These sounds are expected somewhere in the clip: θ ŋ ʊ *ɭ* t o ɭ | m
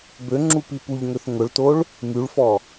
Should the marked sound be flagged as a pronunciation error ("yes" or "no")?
no